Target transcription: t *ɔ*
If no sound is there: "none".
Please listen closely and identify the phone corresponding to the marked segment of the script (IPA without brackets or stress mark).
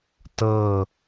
ɤ